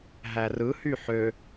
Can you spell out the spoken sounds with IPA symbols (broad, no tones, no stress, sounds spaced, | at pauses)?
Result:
ɦ æ r ɯ h y ħ ø